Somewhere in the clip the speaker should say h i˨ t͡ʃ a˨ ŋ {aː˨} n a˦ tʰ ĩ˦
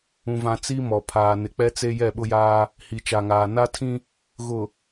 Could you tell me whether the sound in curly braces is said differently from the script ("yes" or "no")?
no